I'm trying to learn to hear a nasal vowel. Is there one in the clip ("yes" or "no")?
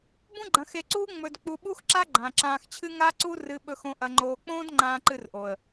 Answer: yes